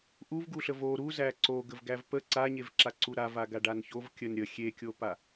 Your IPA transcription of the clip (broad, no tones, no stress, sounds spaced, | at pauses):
ʔ u v ɡ u ɬ ə v o ɾ u z æ ǀ o ɡ ə v ɡ æ v p ə ǀ a ɲ e v ǁ a ǀ u ɾ a v a ɡ a ɖ a n ç o v kʲ ə n ɾʲ ə xʲ e kʲ o p a